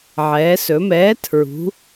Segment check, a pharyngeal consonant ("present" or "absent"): present